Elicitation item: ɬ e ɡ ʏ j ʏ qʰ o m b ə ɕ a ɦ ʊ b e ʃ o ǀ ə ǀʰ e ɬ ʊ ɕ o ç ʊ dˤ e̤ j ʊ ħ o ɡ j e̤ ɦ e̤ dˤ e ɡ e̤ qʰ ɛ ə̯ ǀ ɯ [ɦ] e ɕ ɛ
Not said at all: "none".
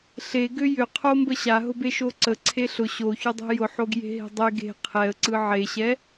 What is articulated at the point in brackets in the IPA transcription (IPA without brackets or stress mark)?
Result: ʕ